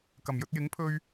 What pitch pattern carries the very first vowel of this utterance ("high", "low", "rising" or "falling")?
low